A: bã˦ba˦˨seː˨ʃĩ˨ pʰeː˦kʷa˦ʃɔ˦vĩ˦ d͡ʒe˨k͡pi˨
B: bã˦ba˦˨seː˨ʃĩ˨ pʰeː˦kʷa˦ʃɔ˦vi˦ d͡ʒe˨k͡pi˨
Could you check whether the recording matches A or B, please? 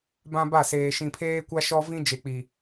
A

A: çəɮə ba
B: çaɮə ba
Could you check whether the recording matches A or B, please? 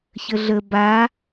A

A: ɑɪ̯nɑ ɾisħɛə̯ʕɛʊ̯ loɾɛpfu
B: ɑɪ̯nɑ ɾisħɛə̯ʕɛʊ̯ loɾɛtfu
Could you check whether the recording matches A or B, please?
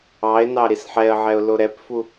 A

